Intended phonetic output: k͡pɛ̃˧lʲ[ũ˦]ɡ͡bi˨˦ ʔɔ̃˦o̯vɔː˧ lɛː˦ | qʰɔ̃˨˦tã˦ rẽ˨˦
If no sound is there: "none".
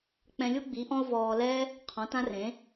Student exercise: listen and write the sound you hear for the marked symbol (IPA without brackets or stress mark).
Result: u˦